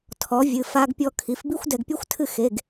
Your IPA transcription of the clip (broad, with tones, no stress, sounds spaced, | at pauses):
tʰ ɔ˩˥ vʲ ɨ˩˧˩ f a˧ ɡ pʲ ɔ˧ kʰ i˩˥ f b i˥ xʷ d ɛ˧ ɡ pʲ ɔ˥ xʷ tʰ ɨ˥˨ x e˩˧˩ ɡ